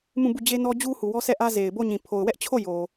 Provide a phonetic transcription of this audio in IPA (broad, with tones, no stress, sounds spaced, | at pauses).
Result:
m ũ˦˨ b u˦˨ d͡ʑ e˦ n ɔ˦ d͡ʑ u˦ h u˨ w ɔ˦ s ɛ˦˨ ʔ ä˦ z e˨ ɪ̯ b o˦˨ ɲ ĩ˨ pʰ o˨ ʊ̯ w ɛ˦ ʔ t͡ɕʰ o˦˨ j o˨